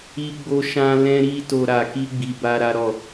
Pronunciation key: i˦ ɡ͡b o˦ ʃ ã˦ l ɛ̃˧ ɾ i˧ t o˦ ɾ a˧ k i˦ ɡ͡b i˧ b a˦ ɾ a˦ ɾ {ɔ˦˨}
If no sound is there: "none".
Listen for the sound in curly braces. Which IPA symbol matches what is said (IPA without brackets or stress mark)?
ɔ˦˨